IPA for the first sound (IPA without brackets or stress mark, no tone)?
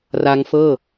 r